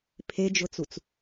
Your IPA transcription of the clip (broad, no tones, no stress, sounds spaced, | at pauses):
pʰ e d͡ʒ ʊ t͡s u t͡s